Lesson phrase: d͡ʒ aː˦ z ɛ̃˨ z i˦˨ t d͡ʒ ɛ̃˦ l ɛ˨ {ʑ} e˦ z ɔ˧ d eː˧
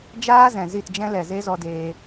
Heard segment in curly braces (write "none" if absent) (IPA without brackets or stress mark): z